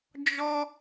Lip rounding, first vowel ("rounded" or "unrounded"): rounded